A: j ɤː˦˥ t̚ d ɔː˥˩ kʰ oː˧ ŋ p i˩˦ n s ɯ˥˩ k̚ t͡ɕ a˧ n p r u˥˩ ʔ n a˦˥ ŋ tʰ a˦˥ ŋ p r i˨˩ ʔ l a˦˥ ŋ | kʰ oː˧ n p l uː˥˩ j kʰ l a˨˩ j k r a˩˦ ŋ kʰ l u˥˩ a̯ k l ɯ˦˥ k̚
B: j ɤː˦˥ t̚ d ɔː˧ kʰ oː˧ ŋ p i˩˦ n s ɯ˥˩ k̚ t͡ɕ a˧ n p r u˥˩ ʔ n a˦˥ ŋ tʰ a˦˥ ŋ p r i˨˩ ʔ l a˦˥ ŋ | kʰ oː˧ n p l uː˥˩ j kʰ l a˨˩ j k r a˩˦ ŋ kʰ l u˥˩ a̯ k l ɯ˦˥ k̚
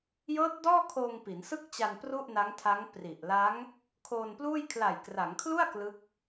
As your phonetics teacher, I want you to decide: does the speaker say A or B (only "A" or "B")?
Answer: A